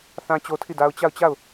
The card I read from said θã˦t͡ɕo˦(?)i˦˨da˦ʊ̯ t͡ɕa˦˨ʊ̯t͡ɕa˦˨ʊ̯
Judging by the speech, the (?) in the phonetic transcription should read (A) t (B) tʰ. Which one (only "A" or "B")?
B